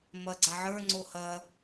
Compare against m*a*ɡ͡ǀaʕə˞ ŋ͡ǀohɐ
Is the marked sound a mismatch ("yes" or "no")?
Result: yes